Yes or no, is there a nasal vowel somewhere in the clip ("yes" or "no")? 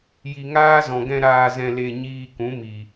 yes